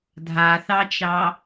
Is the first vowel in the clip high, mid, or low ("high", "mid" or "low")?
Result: low